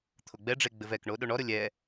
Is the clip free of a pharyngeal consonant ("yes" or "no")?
yes